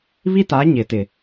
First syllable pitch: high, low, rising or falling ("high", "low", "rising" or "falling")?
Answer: high